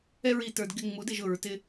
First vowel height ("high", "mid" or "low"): mid